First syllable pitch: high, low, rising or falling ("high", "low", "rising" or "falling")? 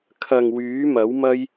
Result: low